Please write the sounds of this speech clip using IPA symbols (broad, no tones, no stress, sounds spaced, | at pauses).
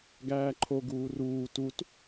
ɡ æː ǃʰ o ɡ uː r uː t u t